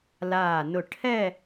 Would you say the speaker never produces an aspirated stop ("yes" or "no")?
no